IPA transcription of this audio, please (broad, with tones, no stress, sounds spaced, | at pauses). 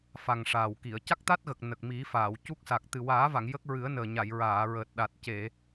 f a˨˩ ŋ ʂ aː˨˩ w k i˨˩˨ ə̯ c a˦˥ k̚ t̪ a˦˥ t̚ ɣ ə˨˩ k̚ n ə˨˩ k̚ m i˨˩˦ f aː˨˩˨ w c u˦˥ k̚ s a˨˩ k̚ t̪ ɨ˨˩ w aː˨˩˦ v a˨˩˨ ŋ j ə˦˥ k̚ ɹ ɨ˨˩˦ ə̯ n əː˨˩ ɲ a˨˩˨ j ɹ aː˨˩˨ ɹ əː˨˩ t̚ ɗ a˨˩ t̚ c e˨˩˨